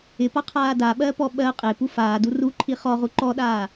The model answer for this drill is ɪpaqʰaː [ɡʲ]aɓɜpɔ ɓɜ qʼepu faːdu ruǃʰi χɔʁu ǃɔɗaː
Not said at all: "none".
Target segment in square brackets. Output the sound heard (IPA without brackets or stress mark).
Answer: d